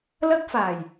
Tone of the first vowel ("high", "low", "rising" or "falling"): high